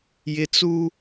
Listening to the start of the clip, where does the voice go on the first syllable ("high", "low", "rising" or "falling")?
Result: high